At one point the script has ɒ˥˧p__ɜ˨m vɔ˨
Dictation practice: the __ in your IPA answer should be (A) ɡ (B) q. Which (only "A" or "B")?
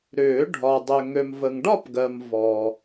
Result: A